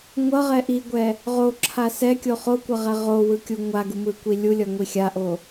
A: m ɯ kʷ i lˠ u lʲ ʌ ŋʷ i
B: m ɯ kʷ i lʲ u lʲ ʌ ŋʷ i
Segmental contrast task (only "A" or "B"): B